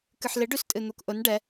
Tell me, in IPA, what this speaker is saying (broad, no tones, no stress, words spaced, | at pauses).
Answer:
kɨħlɪ ɖʉstʼɨn̪ukʔʊn ɖɛ